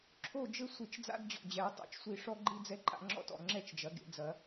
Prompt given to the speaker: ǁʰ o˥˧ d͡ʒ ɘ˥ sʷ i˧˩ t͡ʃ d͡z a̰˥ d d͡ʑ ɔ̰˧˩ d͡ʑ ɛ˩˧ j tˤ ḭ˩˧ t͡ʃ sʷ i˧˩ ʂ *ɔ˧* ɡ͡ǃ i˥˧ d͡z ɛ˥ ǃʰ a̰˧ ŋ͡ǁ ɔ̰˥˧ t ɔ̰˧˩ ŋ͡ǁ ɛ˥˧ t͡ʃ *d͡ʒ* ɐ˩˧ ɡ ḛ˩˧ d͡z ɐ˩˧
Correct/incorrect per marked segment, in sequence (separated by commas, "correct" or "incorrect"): incorrect, correct